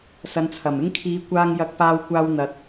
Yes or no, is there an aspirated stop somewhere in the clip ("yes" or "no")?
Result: yes